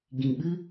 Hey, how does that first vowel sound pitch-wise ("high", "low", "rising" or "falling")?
low